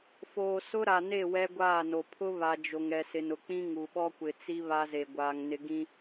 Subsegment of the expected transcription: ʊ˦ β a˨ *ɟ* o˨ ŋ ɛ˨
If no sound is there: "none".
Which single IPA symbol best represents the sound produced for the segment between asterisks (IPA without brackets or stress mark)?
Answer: d͡ʒ